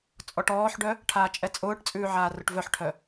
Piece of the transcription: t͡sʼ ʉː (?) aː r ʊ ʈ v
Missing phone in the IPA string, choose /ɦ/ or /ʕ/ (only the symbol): ʕ